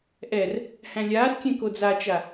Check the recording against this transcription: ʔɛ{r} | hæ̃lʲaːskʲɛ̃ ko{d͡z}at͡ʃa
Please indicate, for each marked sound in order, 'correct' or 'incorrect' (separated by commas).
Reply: correct, correct